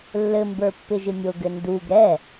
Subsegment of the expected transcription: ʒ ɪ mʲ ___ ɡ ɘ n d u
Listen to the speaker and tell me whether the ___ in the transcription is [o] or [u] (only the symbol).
o